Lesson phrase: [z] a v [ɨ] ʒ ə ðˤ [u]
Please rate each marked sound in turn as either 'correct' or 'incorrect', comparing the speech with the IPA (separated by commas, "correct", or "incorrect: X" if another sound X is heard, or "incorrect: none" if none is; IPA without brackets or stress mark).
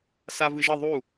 incorrect: s, correct, correct